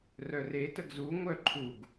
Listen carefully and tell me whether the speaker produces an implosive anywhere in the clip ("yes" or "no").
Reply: no